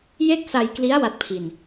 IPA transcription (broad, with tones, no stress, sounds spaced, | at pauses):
j e˥˩ k̚ s a˧ j k l i˦˥ a̯ w a˦˥ t̚ pʰ i˧ n